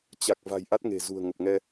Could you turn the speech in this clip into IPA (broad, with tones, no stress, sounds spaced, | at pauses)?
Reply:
t͡ɕ a˨˩ k̚ v a̤˨˩ j ʔ a˦˥ t̚ ŋ e̤˨˩ z ṳ˨˩ ə̯ ŋ ə˨˩ p̚ ŋ ɛ˧